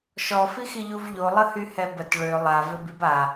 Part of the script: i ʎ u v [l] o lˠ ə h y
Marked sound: incorrect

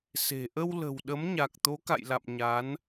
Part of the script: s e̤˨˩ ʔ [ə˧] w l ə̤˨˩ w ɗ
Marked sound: correct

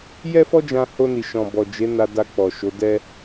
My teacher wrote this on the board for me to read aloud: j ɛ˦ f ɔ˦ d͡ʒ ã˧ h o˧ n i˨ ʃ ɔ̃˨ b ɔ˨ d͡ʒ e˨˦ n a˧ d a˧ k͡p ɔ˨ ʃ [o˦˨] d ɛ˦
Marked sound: incorrect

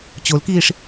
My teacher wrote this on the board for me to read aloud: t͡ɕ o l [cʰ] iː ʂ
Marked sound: incorrect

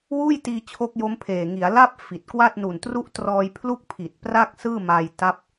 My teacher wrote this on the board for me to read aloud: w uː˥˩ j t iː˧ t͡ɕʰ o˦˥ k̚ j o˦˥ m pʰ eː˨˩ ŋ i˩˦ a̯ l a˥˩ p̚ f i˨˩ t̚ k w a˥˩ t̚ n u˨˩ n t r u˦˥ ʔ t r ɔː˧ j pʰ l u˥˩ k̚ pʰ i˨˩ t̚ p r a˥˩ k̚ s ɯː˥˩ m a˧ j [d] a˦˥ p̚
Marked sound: incorrect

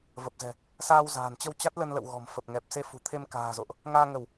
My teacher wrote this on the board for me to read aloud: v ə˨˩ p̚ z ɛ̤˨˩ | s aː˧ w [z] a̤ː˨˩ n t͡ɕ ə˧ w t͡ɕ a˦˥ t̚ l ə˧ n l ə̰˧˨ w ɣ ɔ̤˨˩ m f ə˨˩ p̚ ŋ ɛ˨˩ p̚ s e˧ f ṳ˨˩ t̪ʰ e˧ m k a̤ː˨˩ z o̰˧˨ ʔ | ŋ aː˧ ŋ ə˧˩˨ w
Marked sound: correct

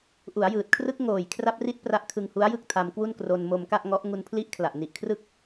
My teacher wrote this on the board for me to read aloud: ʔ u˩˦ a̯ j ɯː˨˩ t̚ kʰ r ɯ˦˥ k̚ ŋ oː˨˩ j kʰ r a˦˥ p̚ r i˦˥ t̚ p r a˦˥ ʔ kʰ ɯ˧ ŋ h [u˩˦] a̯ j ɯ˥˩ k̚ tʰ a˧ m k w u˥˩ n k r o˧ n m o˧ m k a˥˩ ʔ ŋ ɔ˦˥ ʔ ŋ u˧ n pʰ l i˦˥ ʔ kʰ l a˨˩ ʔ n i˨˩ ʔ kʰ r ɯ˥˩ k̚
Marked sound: incorrect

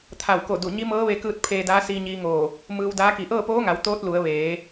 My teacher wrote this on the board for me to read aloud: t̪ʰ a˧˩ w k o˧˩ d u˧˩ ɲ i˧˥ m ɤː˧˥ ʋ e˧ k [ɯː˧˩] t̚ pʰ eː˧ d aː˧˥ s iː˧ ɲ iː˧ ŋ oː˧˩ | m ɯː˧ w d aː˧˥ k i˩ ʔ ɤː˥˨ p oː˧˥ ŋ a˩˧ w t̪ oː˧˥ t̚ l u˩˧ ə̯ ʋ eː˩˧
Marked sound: incorrect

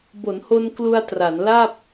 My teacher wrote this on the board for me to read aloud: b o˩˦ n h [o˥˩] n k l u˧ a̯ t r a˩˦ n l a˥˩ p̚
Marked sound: incorrect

